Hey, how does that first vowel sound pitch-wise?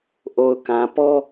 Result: low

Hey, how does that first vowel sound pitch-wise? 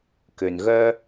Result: low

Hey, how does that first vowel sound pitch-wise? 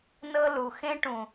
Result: high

